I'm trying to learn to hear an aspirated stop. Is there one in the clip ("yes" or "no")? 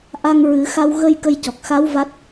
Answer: no